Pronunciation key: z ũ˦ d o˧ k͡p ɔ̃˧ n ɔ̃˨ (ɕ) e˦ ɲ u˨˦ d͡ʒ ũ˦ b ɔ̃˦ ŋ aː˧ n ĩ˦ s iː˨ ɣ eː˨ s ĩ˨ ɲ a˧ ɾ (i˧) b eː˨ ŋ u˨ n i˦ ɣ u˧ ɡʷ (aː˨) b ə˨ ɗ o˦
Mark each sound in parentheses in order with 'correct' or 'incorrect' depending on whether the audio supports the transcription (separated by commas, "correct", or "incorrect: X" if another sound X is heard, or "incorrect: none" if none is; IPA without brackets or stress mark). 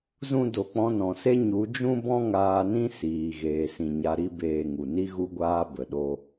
incorrect: s, incorrect: i˦, incorrect: aː˧